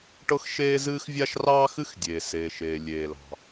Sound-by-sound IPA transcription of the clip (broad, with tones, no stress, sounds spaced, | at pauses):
ʈ ɤ˥ x ʃ eː˥ z ɨː˥ x vʲ a˥ ʃ r ɑː˥ x ɨ˥ x dʲ eː˩ s eː˩ ʃ eː˩ lʲ eː˩ l ɑ̤˩